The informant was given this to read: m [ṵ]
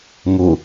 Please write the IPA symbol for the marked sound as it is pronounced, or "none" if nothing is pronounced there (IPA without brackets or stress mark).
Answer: u